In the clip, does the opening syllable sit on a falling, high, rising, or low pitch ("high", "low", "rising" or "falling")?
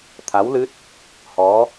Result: rising